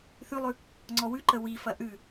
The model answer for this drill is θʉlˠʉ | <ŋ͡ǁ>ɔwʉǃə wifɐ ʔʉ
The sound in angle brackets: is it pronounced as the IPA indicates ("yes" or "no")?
no